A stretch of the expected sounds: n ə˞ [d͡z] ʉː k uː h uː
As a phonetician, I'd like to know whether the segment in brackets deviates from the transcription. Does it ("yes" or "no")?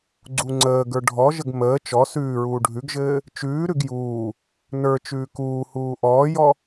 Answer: yes